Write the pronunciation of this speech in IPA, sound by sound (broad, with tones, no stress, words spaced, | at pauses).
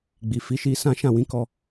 ɡ͡bi˨fi˨˦ʃi˧ sã˦ ʃã˦˨ wĩ˧kɔ˧